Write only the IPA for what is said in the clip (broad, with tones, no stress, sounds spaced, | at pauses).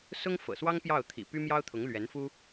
s ʊ˥ ŋ f ɤ̰˨˩ s w ɑ˥ ŋ p j ɑ˥˩ ʊ̯ t̪ʰ ḭ˨˩ p y˥ m j ɑ˥ ʊ̯ t̪ʰ ʊ˧˥ ŋ l ɥ ɛ˧˥ n f u˥